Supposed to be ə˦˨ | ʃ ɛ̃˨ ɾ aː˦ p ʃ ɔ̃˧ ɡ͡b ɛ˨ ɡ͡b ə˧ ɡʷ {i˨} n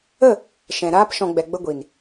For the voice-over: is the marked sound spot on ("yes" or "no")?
yes